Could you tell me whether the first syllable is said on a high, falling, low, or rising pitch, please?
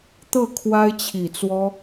falling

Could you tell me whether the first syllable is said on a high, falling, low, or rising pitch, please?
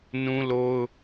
high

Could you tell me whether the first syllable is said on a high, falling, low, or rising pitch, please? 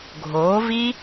rising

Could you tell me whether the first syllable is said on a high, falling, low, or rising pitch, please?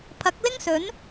rising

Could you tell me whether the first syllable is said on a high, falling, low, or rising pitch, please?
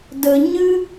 low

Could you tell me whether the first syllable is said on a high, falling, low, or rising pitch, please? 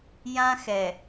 high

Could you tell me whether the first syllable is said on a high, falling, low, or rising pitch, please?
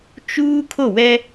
high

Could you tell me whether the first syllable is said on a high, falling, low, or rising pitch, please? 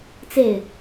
falling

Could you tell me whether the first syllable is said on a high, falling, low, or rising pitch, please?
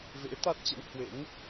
rising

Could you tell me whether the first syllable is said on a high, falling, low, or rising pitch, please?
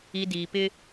low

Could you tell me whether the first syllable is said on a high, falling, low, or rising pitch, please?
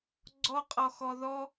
high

